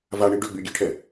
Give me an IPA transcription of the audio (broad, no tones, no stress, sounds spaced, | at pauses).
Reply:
v a ɳ i ɖ ø ɡ͡b y ɡʲ e ʈʰ ɛ